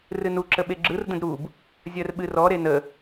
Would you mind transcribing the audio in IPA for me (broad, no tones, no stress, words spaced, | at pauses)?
rɨnu ǁəɓeɡ͡ǁɯr də̃dɾub | zʲɜrɓɨrɔ ɾenə